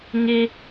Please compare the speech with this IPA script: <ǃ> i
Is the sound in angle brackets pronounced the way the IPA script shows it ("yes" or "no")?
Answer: no